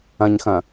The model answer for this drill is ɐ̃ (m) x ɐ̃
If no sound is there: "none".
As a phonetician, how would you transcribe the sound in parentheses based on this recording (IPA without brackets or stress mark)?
ɲ